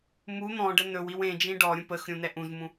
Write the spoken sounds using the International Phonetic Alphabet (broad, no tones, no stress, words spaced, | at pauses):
mu n̪ɔ̃ɖə nɵwiw ẽ d͡ʒĩɖɔɾʲũ pəxɾʲũ nɛʔũzmũ